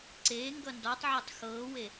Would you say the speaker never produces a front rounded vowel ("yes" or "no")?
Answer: yes